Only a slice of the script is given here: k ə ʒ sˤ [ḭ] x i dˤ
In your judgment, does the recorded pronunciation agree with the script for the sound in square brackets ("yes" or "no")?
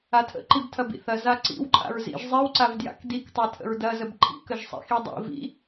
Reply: yes